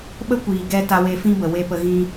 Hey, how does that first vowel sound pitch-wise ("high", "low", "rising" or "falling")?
high